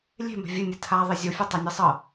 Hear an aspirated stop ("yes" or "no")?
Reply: yes